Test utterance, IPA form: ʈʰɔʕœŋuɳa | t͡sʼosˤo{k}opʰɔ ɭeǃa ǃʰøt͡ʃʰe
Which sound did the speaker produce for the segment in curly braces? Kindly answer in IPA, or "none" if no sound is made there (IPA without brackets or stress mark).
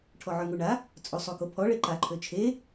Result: k